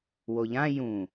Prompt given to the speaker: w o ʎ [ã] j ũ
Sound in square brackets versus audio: correct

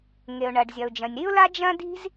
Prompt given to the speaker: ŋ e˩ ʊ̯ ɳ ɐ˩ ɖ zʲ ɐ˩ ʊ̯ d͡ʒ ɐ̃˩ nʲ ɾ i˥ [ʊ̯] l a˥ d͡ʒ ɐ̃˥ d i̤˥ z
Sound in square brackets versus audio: correct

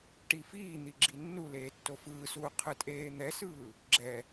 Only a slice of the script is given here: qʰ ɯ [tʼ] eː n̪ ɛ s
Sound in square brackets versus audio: correct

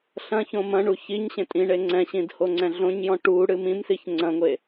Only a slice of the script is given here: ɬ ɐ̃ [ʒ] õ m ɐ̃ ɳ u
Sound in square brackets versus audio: incorrect: ç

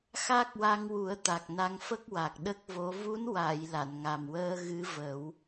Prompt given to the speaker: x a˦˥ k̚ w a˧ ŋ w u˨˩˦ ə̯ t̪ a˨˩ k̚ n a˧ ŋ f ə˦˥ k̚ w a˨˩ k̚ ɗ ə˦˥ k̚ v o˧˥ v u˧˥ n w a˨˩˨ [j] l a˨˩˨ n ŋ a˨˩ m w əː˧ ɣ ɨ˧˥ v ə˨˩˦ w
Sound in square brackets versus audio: correct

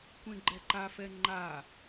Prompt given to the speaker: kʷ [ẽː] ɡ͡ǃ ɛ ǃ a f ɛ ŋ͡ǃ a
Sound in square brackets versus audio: incorrect: ẽ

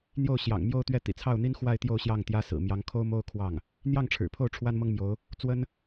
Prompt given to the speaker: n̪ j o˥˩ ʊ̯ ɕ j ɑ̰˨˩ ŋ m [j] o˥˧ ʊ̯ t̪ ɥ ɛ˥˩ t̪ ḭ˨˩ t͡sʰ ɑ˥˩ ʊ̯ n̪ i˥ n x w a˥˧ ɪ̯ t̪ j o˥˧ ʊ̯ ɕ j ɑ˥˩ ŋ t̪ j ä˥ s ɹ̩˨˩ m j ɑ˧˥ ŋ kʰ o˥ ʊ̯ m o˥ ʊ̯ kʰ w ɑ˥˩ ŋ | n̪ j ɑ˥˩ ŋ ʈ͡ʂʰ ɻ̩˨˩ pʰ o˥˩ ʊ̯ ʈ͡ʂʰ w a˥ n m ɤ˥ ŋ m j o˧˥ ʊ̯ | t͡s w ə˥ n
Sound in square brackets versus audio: correct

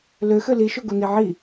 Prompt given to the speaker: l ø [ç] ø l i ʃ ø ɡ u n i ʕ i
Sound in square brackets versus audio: incorrect: x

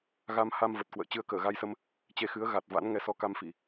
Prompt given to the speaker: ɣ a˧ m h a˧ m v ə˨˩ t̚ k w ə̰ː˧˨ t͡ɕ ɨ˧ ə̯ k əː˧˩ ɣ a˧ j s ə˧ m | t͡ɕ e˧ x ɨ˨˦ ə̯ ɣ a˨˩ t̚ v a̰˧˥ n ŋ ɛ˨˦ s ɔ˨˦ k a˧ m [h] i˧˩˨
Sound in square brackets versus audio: incorrect: f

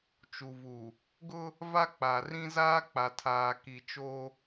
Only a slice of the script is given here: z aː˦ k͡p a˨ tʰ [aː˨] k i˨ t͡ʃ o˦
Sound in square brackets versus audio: correct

